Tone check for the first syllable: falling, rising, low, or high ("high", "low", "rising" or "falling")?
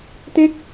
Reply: falling